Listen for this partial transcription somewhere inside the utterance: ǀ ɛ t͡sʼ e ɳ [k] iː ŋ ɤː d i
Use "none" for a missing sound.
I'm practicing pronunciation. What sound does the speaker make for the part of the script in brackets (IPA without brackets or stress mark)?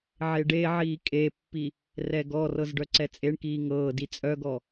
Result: k